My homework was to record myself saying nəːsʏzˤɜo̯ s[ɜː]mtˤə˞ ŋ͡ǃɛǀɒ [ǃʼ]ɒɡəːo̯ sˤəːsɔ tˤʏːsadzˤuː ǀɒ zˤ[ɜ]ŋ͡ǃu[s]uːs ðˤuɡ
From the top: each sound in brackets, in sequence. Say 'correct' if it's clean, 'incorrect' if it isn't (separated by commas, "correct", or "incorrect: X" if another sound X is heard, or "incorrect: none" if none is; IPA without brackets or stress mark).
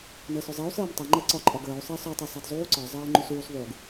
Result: correct, correct, incorrect: ɜː, correct